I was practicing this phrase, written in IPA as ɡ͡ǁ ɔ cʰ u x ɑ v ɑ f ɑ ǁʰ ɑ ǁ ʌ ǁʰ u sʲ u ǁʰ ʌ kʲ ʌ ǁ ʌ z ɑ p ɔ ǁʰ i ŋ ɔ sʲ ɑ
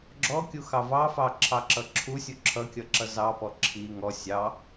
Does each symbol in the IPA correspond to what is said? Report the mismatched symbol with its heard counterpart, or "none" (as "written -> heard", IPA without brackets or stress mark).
cʰ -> kʲ